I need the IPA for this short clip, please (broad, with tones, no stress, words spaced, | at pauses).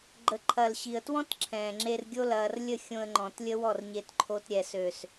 ɡ͡ǃə˨ǃʰɐ˨l ɕi˨ə̯twɔ̃˦t ǁʰɛ̃ː˨ŋ͡ǁe˧rɡʲo˦ lɐː˧r lʲə˦˨xʲõ˧ə̯ŋ͡ǃɔ̃˨t lʲə˦wɔ˦˨rɲe˧tǃʰo˧t ɾʲɛ˨sø˨s